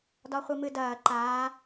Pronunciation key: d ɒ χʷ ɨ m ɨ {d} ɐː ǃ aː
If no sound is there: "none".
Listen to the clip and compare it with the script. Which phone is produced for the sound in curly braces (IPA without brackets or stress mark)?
d